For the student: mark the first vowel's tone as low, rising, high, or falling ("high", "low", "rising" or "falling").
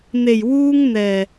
low